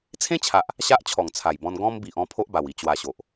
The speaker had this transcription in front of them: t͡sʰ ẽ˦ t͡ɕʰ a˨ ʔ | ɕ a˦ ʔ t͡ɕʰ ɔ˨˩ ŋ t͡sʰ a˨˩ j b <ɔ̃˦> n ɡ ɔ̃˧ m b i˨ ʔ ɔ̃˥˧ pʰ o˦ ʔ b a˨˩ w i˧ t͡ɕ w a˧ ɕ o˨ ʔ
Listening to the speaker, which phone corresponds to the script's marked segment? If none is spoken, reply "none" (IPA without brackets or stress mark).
ɔ̃˧